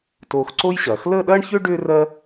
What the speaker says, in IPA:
t oː˧ x ǀ o˥ j ɕ ɐː˩˧ x l əː˥˧ ɗ ɐː˥ ɳ ç ʏː˥ ɖ ʏː˥ r ɜ˥

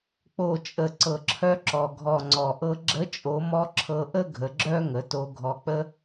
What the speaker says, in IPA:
k͡p o˩ t͡ʃʼ ə˩ ǀ ɤ˩ ǁʰ œ˧ ǁ ɔ˩ ɡʱ ɔ˩ ŋ͡ǀ ɔ˩ ʔ ɤ˧ ɡ͡ǁ ə˧˥ t͡ʃʼ o˩˧ m ɔ˧˥ ǁʰ ɤ˧ ʔ ə˥ ɡʱ ə˩˧ ɡ͡ǁ œ˥ ŋ ə˩˧ t o˧ ɡʱ ɔ˧ k͡p ə˥

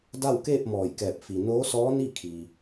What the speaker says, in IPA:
d a˥˨ w k eː˥˨ p̚ m ɔː˧˩ j k ɛː˧˩ p̚ f i˩ n oː˧˥ s ɔː˧˥ n i˥˨ kʰ i˩

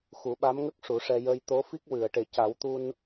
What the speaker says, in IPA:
x u˨˩˦ ɓ a˧˥ m ŋ ə˦˥ k̚ ʂ u˨˩˦ ʂ ɛ˧ j ə˧ j t̪ o˧˥ f i˦˥ k̚ w ɨ˨˩˨ ə̯ ʈ e˨˩ c a˨˩˦ w t̪ u˧ n

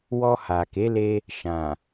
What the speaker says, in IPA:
w ɔ˧ h a˨ k e˨˦ l e˧ | ʃ ã˨

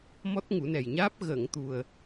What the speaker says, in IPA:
m ɔ˦˥ t̚ ŋ u˨˩˦ n ɛ˨˩ j ɲ aː˦˥ p̚ ɣ ə˨˩˨ ŋ t̪ u˨˩ ə̯

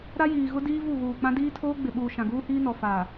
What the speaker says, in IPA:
ɾ a˦ j iː˨ ɣ ʊ˦ d iː˦ v u˦˨ ɣ uː˨ k͡p ã˦ d iː˦ tʰ oː˦ ɡ͡b ɪ˨ ɓ uː˨ ʃ ã˨ ɡ uː˦ h iː˦ n ɔ˨ f aː˨

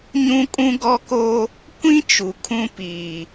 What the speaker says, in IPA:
ɲ ũ˦ kʼ ũ˦ ɡ ɔ˦ k o˦ | kʷ ĩ˦ t͡ʃ u˨ kʰ ũ˦ p iː˨

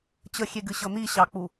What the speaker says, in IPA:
t͡ɕ ə xʲ e ɡ ɨ ɕ ɤ n̪ i ɕ ɑ k͡p u

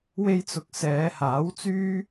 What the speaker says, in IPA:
w e˧ j t͡s ʊ˨˥ k̚ s ɛː˨˧ h aː˨˥ w t͡s yː˥

